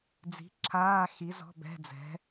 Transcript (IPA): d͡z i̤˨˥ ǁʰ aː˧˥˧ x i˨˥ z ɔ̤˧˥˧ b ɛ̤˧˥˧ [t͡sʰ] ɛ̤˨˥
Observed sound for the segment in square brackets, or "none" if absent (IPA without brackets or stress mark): d͡z